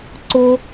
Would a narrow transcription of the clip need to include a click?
yes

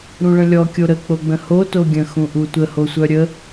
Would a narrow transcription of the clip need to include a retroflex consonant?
yes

